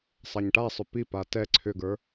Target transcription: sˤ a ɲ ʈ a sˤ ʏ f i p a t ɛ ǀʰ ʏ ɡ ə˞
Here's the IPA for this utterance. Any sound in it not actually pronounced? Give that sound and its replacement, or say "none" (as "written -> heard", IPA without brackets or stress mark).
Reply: f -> p